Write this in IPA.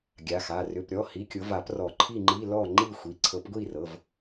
ɡʲa˩˧˩xa˩˧˩ rʏ˩˧˩pɾʲɔ˩˧˩hi˩˧˩ kʲʊ˨˦va˨˩˦prɔ˨˩˦ ǃʰi˥˨ŋ͡ǃi˧˥˧ lɔ˥˨ ŋ͡ǃi˥˨xʷi˩˧˩ ǀʰɤ˨˦pɡʷi˥˨rɤ˩˧˩v

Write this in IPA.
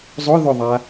zˤʊ ðʊðˤa

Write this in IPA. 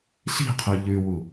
ɬi̤qʰʉ ʎʉwu

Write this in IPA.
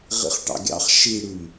ʁḭχʈɑ̰ɡʲɑ̰χ ʃiɽʉm

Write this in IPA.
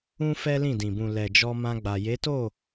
ũ˦ fɛ˦lĩ˦˨ dĩ˨bũ˨ lɛ˨ d͡ʒɔ˧mã˧ɡ͡ba˨ je˨˦to˦˨

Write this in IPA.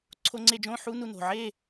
ǀʰo˦ ŋ͡ǀe˦d͡ʒõ˦ħu˦ nu˦ no̤˨ʕe˦˨

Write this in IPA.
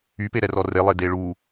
ypeɾɛrɔ relˠe deɭu

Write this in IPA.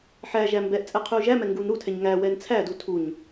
ħæʒæ mbɛʔ t͡sʼɛqʰʉu̯ʒæmɛ ŋɡunɾutʰɛɲ ŋæwɛn t͡sʰædu tʰuɲ

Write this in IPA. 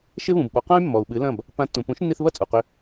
ʃɪ˥βũ˩bɓɔ˩˥ qã˥y̯ mːɔ˩u̯ɓɨ˩˥lɐ̃˥˩b | pã˧tːũ˩ pũ˩˥ʃnːi˧θβɐ˥˩ t͡sʼu˩qʏ˧

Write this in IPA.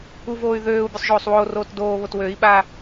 uvoːy̯ ðøːu̯ bʲusˤʒoːsˤwoːroːt doːβot wøi̯ɓa

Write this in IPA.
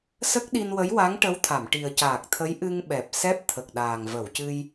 sə˦˥k̚ɗi˧n wə˧˥jwa˧˥ŋʈə˧˥wt̪ʰa˨˩˨m ʈi˨˩ə̯caː˨˩k̚t̪ʰə˧˥j ʔɨ˧ŋɓɛ˨˩p̚ sɛ˦˥p̚t̪ʰə˨˩k̚ɗaː˨˩ŋ və˨˩˨wcɨ˧j

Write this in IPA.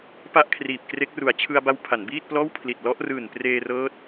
pa˥˩ʔkʰriː˨˩p̚kre˦˥k̚ru˨˩a̯ t͡ɕʰɯ˧a̯ba˧w pʰa˩˦nbiː˥˩t̚plɔː˥˩wpʰli˨˩t̚ lɔ˦˥ʔrɯː˨˩npreː˧rɤː˦˥t̚

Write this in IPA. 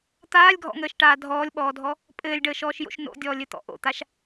t̪aːlʲɡʱɔ̰ŋəːʃʈaː dʱɔːlʲɓɔːdʱɔ | pʼɘːlʲɖəːʃɔːʃjo̰ʃ no̰dʲɔːlʲɘt̪ɔ̰ ʔo̰t̪aʃ

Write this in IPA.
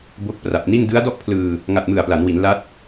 bo˦˥k̚ pra˨˩p̚ni˥˩n dɯ˦˥a̯dɔ˥˩ʔpʰlɯː˧ | ŋa˨˩t̚mɯ˨˩a̯pla˩˦nwi˩˦n la˦˥t̚

